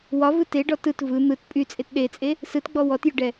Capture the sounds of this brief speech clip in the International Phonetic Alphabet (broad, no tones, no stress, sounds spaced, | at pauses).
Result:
w ɒ v ɯ t e ɖ ɔ t ɯ t v ɯ n̪ ɯ t pʼ y t͡sʼ e t ɗ e t͡sʼ e | s ɯ t ɡ͡b ɔ w ɔ t j ʏ ɖ ɛ